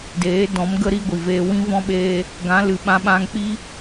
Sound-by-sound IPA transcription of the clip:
deː˨˦dɔ̃˨˦mɡə˦ ɾi˦ɡʷi˨veː˧ wĩ˦vɔ̃˦ɓeː˧ | ɡã˨˦lɨ˨ɓã˧ɓã˧ŋ k͡pi˦

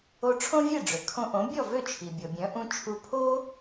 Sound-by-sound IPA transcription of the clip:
o˧ ʈ͡ʂʰõ˥vʲe˥˩ɖ͡ʐø˩ kʰõ˧ʔõ˩˥bʲɔ˥˩ vø˥˩t͡ʃʰi˩bʲɔ˩bʲœ̃˩˥ ʔũ˧ t͡ʃʰu˧ pʰo˥

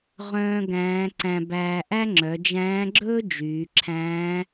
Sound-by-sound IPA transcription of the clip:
ʁœ̃ː˥ɡæ̃ː˧˥ ǀæ̃˧bæː˧ʔæ˥ ŋ͡ǁœ˩˧d͡ʒæ̃ː˧˥ɡ͡ǁɵː˥ d͡ʒyː˩˧ǁʰæ̃ː˧˥

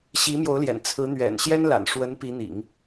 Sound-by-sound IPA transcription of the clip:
ɕi˧˥mjo˧˥ʊ̯ljɛ̰˨˩n t͡sʰɹ̩˧˥ n̪ɥɛ̰˨˩n ɕjɛ˥nla̰˨˩nʂwə˧˥n pi˧˥n̪ḭ˨˩˦ŋ

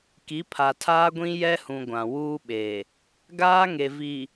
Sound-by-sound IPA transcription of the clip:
ki˨˦pʰa˨tʰaː˦ɡʷĩ˦ jɛ˦hũ˨ ɡʷã˨wuː˦ɓe˨ | ɡaː˦ŋe˨vi˨

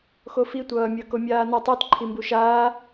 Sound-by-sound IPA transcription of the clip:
xofitʷʌː mʲʌkomʲaːnʌ tˤutǃʰimbu ʃaː

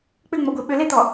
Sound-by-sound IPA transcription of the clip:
k͡pʏŋ͡mɔɡʷe ɓʏlet̪ɔ

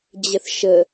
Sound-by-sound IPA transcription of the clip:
d͡ʑəθʃə

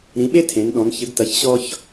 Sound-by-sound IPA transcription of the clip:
ɾĩ˨˦ɓe˥ tʰẽ˨˦nɗɔ̃˨˦n çɘ˨˦ɡtɐ˨˦ç ɕɔ˥ç

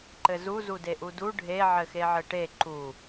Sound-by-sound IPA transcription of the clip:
ǃɘzu zudeʔudu ɖʱe ʕɘxeʕɘʈe ǃu

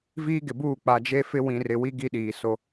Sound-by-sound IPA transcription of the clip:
viː˦ɡɪ˨buː˦˨ k͡pa˨d͡ʒe˦fɪ˦ wĩ˨rɪ˨ wi˦ ɡi˦ɗiː˨ so˦

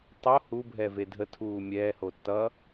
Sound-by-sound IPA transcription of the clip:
tˤo hubʱɛve dʱətʰuː mʲɛːho tːʌ

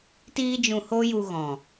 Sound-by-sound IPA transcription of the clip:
tiː˦d͡ʒũ˧ho˦ju˧ ɣɔ̃˨

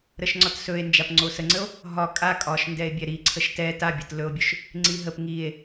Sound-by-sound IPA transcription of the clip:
ɾəʃŋ͡ǀɒtsɵe̯ nd͡ʒapŋ͡ǀosəŋ͡ǀəo̯ | ɦɒ kʼa kʼɒʃndɛe̯ bʲɛɾi ǀʰəʃtɛ tabʲə tlɵo̯bʲɵʃ | ŋ͡ǀiɦəp ŋie̯

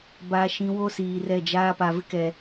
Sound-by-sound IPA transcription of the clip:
ba˨ʃĩ˨ wo˦siː˨rɛ˦˨d͡ʒaː˦ pa˨vɪ˦kɛ˨

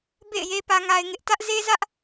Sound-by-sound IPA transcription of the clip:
bḛ˦˨ɪ̯je˦ pä˦ŋa˦ɪ̯ŋɪ˦ʔ tä˦ʔze˦zä˦ʔ

